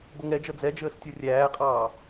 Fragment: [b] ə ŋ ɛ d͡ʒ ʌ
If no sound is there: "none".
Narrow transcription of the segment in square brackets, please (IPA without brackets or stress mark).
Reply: b